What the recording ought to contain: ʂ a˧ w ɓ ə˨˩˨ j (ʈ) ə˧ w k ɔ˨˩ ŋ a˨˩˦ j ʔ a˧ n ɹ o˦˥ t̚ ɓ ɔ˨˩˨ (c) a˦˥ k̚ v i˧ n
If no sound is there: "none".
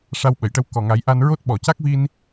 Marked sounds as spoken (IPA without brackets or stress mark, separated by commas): ʈ, c